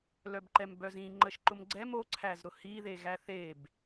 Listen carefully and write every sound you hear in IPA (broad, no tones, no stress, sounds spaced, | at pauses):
l œ b ǃ ɛ m b œ z ĩ ŋ͡ǃ ə ʃ ǃ ʊ m ɡ͡ǀ ɛ m o ǀʰ æ z ɾ ʊ h i ð e ɣ æ θ e b